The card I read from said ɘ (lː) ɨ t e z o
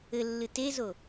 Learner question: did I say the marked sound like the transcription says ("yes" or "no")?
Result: yes